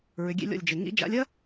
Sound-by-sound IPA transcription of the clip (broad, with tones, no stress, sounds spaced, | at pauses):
ɹ ʏ˨˦ ɡʲ ḛ˦ lʲ ɔ̰˦˨ lʲ d͡ʒ e˨ ŋ ḭ˨˦ d͡ʒ a̰˨˦ lʲ ɐ˦